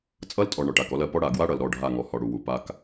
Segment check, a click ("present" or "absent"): absent